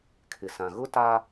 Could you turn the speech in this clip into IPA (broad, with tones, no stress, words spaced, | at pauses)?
kʰɪ˨sã˨ɣʊ˦ ta˦